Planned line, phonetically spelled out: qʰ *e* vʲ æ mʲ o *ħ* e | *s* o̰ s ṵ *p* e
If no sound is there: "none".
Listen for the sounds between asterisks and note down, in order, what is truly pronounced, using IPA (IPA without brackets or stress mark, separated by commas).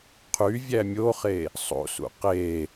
y, χ, sˤ, q